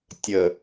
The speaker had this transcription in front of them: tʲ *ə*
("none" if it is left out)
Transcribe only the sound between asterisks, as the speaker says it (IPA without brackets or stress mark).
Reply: ə